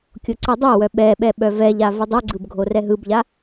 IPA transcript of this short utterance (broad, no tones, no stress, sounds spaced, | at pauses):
kʲ o ǀ ɯ dˤ ɜ w œ ɓ ɛ ɓ ɛ ɓ œ v ɛ ʎ a v o dˤ ɯ ɡ͡ǀ ɯ b ɡʱ o r ɛ ɦ ɯ b ʎ a